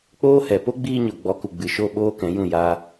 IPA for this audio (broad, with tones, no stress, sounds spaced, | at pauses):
k͡p oː˦ h ɛ˨ p o˦ ɡ͡b iː˧ ɲ o˨ ɡ͡b ɔ˨˦ k u˨ ɡ͡b ɨ˨ ʃ o˦˨ ɓ oː˦ k ɛ̃˨˦ j ũ˦˨ j a˧